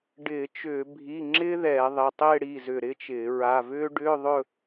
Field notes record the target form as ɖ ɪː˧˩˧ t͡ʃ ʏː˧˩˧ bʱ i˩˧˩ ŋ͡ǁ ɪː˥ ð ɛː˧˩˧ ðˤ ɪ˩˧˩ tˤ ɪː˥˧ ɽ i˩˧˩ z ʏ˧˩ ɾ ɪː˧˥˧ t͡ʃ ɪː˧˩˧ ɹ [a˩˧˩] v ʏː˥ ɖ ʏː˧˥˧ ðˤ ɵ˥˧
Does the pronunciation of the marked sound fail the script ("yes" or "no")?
no